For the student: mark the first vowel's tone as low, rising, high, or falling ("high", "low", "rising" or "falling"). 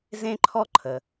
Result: high